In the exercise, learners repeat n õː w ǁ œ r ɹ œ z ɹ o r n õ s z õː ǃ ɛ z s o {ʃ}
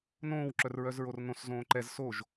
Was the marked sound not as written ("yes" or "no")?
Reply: yes